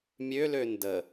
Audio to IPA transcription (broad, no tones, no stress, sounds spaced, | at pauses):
mʲ ø l ø n d ə